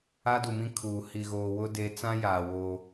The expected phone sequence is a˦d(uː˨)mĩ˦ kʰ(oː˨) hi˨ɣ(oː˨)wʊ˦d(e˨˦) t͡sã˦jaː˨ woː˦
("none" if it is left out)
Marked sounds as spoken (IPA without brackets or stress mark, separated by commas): u˨, uː˨, oː˨, e˨˦